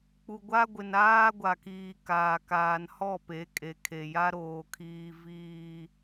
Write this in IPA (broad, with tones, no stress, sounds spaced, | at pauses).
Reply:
k͡p u˨ ɡʷ a˦ ɡʷ ɪ˨ n aː˦ ɡʷ a˨ k iː˨ k aː˨ k aː˨ n h ɔ˦˨ p e˨˦ kʼ e˨ kʰ e˨ j a˦ ɾ oː˨ kʰ iː˨ v iː˨